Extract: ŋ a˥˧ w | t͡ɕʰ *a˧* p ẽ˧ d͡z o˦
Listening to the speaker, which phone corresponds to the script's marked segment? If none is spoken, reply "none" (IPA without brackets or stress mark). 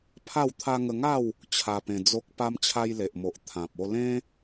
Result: a˧